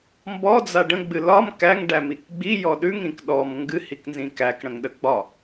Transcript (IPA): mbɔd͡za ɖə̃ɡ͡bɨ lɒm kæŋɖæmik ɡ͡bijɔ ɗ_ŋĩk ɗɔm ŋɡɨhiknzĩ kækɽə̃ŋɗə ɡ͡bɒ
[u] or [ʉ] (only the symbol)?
ʉ